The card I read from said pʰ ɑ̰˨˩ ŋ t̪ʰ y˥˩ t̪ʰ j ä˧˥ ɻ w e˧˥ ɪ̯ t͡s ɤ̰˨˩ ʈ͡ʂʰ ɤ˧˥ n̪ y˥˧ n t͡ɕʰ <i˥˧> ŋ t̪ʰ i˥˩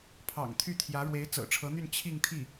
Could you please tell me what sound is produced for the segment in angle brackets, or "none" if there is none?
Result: i˥˧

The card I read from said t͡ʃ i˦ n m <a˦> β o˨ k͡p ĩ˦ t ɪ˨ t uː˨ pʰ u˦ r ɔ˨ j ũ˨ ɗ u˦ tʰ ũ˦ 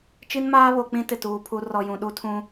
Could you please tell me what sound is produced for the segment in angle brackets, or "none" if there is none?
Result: aː˦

